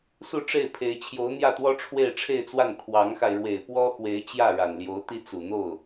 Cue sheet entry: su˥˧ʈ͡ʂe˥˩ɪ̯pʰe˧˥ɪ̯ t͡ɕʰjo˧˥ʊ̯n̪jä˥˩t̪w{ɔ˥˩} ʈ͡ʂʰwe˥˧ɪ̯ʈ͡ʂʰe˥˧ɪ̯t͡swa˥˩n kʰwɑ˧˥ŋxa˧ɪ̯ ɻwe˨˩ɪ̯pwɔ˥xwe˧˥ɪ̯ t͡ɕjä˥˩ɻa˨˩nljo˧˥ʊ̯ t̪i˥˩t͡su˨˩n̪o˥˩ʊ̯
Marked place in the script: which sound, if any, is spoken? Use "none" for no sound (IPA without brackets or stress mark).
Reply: ɔ˥